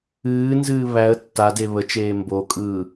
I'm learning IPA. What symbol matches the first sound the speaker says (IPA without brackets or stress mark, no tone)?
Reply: ɨː